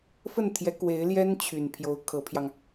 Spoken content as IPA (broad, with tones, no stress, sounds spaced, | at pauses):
f ə˥˩ n t̪ʰ j ɛ˧˥ k w e˧˥ ɪ̯ l j ɛ˥ n t͡ɕʰ y˨˩ n pʰ j o˧˥ ʊ̯ kʰ ɤ˧˥ pʰ j ɑ˧ ŋ